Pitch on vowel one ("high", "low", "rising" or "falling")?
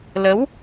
rising